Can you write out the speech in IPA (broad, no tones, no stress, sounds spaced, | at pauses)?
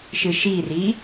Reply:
ʃ ɯ ʃ i r i